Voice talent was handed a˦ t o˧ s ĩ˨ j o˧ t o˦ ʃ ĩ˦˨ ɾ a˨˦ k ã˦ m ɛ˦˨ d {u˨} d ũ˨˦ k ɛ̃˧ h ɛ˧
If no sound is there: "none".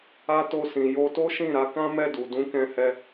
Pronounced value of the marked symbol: u˨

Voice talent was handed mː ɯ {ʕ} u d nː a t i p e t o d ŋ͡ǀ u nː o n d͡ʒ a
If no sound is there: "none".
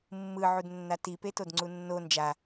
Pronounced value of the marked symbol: ʕ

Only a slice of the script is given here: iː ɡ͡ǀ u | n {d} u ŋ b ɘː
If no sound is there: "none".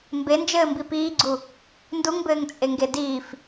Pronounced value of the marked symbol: d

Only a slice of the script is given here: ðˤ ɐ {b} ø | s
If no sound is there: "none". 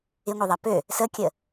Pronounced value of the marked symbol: p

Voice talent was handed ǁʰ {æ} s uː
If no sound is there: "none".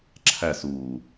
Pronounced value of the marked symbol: æ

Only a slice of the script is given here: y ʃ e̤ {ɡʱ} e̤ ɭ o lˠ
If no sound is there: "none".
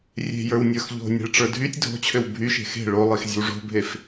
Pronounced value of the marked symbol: x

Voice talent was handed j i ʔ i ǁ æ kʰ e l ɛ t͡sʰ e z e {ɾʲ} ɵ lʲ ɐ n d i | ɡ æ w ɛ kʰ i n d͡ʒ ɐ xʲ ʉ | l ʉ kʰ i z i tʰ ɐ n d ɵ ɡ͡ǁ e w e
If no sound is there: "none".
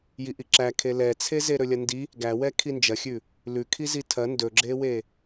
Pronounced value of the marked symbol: ɾ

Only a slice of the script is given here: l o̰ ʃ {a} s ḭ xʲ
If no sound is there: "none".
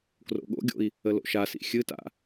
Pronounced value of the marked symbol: a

